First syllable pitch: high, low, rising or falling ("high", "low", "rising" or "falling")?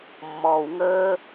low